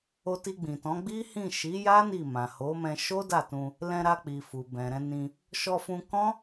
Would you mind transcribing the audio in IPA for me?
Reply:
o˧ t i˧ ɡ͡b ĩ˨ t ɔ̃˨˦ ɡ͡b i˦ h ĩ˦˨ ʃ i˨˦ j a˦ n i˦˨ m ã˨ h o˨˦ m ɛ̃˧ ʃ o˦ d a˦˨ t ũ˧ | l ɛ̃˧ ɾ a˧ k͡p i˨ f u˨ b ɛ̃˨ ɾ ɛ̃˧ n ĩ˧ | ʃ ɔ˧ f ũ˧ k ɔ̃˦

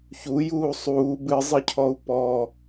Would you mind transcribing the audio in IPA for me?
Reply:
ç u j uː sˤ uː b ɨ zˤ ɨ cʰ ɔ u̯ p ɔ

